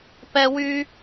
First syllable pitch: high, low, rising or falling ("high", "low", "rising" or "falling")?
high